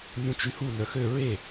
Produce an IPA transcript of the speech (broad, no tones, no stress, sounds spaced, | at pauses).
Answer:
nʲ ũ t͡ʃ y h u n œ x ø ɹ e